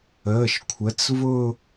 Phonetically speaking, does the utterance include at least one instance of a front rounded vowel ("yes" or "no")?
no